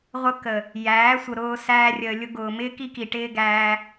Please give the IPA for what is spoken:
ʁʷ ə˦ k ə˨ | j æː˨˦ sʷ ə˨ ɾ ʊː˧ s æː˧ rʲ əː˨ lʲ ʊ˧ ɡ ʊː˨ m ɪː˦ k i˦ k i˨ ʈ ɪː˦ ɡ æː˧

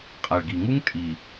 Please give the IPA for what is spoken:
qʼ a˨ ɭ ɡ i˨ ŋ u˦ ŋ tʼ i˨

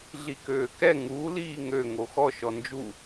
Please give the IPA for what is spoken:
ɮ i k øː k ɛ ŋ u l iː ŋ ø ŋ o x ɔ ʃ ɔ n d͡ʒ u

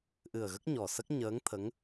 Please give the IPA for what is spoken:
ʔ ɨ˨˩ ə̯ ɣ ə˦˥ k̚ ɲ ɔ˨˩ s ə˦˥ k̚ ɲ əː˧˥ ŋ t̪ʰ ə˧˥ ŋ

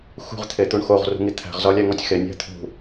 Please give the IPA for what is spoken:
x ṳ ʁ t̪ʰ e t̪ u ɳ x o ʁ r ṳ ŋ i t̪ʰ æ̤ ʁ z ɒ lʲ æ ŋ ɒ tʲ x e nʲ æ̤ t̪ʰ ṳ

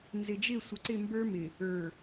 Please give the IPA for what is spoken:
n z ɪ˨ d͡ʒ ɪ˦˨ sʷ ə˨ ǀ ɪ˦˨ m b ə˞˦ m ɪ˨ | ə˞˨

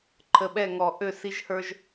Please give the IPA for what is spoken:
ǃʰ ə˨ ɓ ɛ˦˨ ŋ ɔ˨ ʔ ø˦˨ s i˦ ʒ h ə˞˦ ʒ

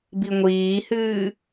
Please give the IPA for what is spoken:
b i ŋʷ iː h ɨː

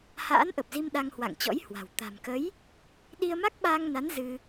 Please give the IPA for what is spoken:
h a̰ː˧˥ n ʔ ə˨˩ p̚ z i˧ m ɗ a˧ ŋ h w a̰˧˨ ŋ t͡ɕ ɔ̰˧˥ j h w a̤˨˩ w t̪ a̤˨˩ m k ə˨˦ j | ɗ i˧ ə̯ m a˦˥ k̚ ɓ aː˧ ŋ n a˨˦ n z ɨ˧

